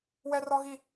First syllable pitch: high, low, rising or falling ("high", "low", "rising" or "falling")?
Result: high